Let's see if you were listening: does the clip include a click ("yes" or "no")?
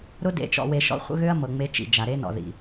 no